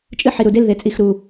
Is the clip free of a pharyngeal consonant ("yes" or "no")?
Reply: no